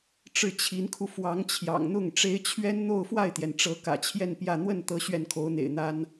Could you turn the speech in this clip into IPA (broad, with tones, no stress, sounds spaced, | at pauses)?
ʈ͡ʂ ɻ̩˥˩ t͡ɕʰ i˧˥ n kʰ u˧ f w ɑ˧˥ ŋ t͡ɕʰ j ɑ̰˨˩ ŋ n̪ ʊ˥˩ ŋ ʈ͡ʂ e˥ ɪ̯ t͡ɕʰ ɥ ɛ˥ n n̪ o˥˧ ʊ̯ f w a˥˩ ɪ̯ t̪ j ɛ˩ n ʈ͡ʂ ɤ˧˥ k ä̰˨˩ t͡ɕʰ j ɛ˥˧ n p j ä˥˧ n̪ w ə˥˩ n t̪ ɤ˧˥ ɕ ɥ ɛ˥˩ n kʰ o˧˥ ʊ̯ n̪ ḛ˨˩ ɪ̯ n̪ a˥ n